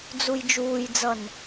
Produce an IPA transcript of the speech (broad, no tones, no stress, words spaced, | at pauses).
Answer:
d͡zujd͡ʒuːjd͡zʌn